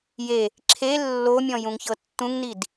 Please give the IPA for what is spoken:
je | ǁʰe lːomʲɔ̃ jũŋçɤtːũŋnid

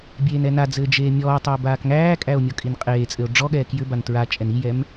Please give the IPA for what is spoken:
bʲeːnɛnad͡zɘː d͡ʒeːmʲɔːtˤɘː baːkŋæːkʼæo̯ mʲɔkʼinqʼeːt͡sʼɘo̯ ɖ͡ʐɔɠɛː kjʏban tɹa t͡ʃʼɛnijɛm

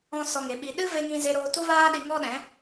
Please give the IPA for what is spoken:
ɔ̃˧ sɔ˧ŋe˨˦ɓi˧ ɗɨ˦ve˧ŋĩ˧ ze˧ɾoː˧tu˦vaː˦ ɗi˧ŋɔ˦ɗɛ̃˨˦

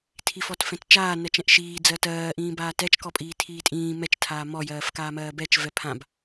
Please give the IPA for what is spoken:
tʰifɔtfɛ̃tt͡ʃaː nɜt͡ʃɛ̃ʔʃiː d͡zɜtɜː ʔĩːbaːtɛt͡ʃ kɔpʼiːtʰiːtʼĩː mɛt͡ʃ tʰaːmɔ jɜːfkaːmɜːbɛt͡ʃ vɛpʰãb

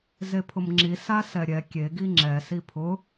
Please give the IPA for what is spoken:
zepʰʊmŋ͡ǁi sasɛɾʲɛ kʲe ɡiŋ͡ǁɛ sipʰʊ

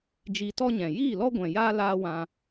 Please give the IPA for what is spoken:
d͡ʒi˧tɔ˦ɲɛ̃˨ jiː˦˨lɔ˦ ɡʷɛ̃˨jaː˦ laː˦wã˧

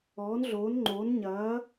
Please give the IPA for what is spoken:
ɔː˨˦nɮoː˨˦nŋ͡ǃoː˨˦n ɲɐː˨˦

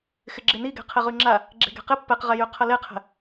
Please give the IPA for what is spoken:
xɪɡ͡ǁɪni ɡɛ̤qʰɪʁyŋ͡ǁa | ɡ͡ǁe̤ɡɛ̤qɪ pːɛqʁɛjy qʰɐleqʰɛ̤

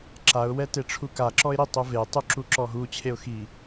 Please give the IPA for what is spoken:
ǁaʊ̯ wɛteʈ͡ʂʰuka ǁɔɪ̯ɾitˤuve tˤuǁuǁɔɦu t͡ɕʰeʊ̯xi

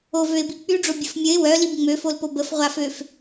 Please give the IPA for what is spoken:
ovøɪ̯bi k͡pyɖ͡ʐo bʲəfmʲəɪ̯ wœ libŋ͡møfolpo bəfʁʷaføf

